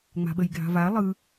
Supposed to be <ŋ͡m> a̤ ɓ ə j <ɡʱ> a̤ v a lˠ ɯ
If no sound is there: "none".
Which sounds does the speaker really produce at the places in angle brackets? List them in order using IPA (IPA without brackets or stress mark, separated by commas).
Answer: ŋ͡m, ɡʱ